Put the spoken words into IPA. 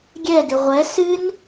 ɡʲ ɛ d ɨ ʁʷ ɛ s ɨ n

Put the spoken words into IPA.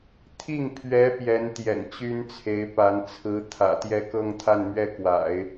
t̪ʰ i˥˩ ŋ pʰ ɥ ɛ˧˥ p j ɛ˧˥ n t̪ j ɛ̰˨˩ n t͡ɕ y˥ n t͡sʰ e˧˥ ɪ̯ p a˧˥ n t͡sʰ ɹ̩˧˥ t̪ʰ ä̰˨˩ t̪ j ɛ˥˧ k ɤ˥˧ ŋ t̪ʰ a˥˧ n m ɥ ɛ˥˩ k w a̰˨˩˦ ɪ̯

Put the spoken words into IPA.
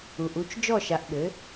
u˩ ʔ u˥˩ t͡ʃ d͡ʒ ɔ˥˩ ʃ a˩˥ ʔ ɓ ɘ˩˥

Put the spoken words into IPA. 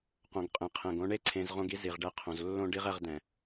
q õ˨ ɡ qʼ ẽ˨ qʰ ɛ̃˨ ɡ õ˧ ɳ e˦ ǀʰ ẽ˧ z ʁ õ˦ ɡ i˦ z i˨ ʁ ɖ ɛ˧ qʰ õ˨ z lː õ˦ ɖ i˦ ʁ ɛ˧ ʁ d ɛ̃˨

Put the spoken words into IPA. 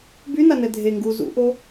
b y n a n ɛ dʱ e ŋ ɡ u z ṵ ʔ o

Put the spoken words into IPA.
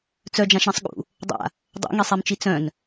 t͡s œ d͡ʒ ã ʃ ɾ ɛ̃ sˤ ɠ ṵ | dˤ a̰ | dˤ o̰ ŋ i sˤ ɛ m t͡ʃ i t͡s œ̃ n

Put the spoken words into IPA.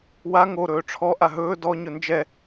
w a ŋ o ɾ ɵː ʈ͡ʂʰ ɔ ʔ a ɦ ɵː d ɔ ɲ ɵ n d͡ʒ ɛ

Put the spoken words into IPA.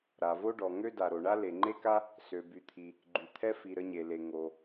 ɾ a˩ v o˥ ɖ ɔ˩ ŋ ø˥ d a˩ ɾ o˩ ɳ a˥ l e˩ ŋ͡ǃ e˥ k a˥ | s ø˩ b y˩ t̪ʰ i˩ | ɡ͡ǃ y˩ t̪ʰ ɛ˥ f i˩ ɾ ə˥ ɲ e˩ l e˩ ŋ o˩

